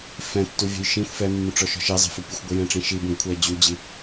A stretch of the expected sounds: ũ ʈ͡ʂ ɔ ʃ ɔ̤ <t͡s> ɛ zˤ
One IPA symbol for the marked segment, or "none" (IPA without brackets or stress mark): ʃ